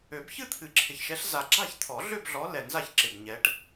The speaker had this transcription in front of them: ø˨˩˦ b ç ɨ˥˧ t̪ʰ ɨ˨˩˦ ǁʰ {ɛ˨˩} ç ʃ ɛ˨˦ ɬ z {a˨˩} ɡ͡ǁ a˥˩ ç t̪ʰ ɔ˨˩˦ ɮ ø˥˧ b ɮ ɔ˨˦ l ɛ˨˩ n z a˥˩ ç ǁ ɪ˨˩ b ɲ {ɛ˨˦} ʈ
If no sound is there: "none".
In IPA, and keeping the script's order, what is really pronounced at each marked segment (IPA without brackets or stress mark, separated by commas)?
ɪ˨˩, a˨˩, ɛ˨˦